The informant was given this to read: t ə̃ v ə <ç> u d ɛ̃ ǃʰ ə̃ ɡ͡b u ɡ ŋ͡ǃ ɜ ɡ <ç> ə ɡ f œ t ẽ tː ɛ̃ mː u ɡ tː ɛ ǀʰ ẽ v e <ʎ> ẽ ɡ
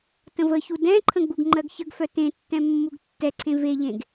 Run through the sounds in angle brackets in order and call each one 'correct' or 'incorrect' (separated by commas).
correct, correct, correct